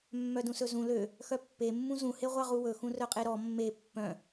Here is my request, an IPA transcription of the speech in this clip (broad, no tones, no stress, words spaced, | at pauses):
mːœdũsɵzũ lø | xœpːe mːũzũ heʁʷɑʁuwɵ xũrœqʼeɾɔ mːe pːœ̃